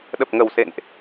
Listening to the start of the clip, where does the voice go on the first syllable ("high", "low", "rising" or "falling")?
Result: low